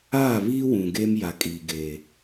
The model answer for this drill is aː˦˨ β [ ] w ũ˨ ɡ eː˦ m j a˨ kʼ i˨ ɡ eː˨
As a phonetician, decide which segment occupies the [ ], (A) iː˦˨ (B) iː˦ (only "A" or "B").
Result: B